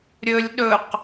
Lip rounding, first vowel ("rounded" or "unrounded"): rounded